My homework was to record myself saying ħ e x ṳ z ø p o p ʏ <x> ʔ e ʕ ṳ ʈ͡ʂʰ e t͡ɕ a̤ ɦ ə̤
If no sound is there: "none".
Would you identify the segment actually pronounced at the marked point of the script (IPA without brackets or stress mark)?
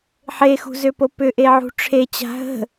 none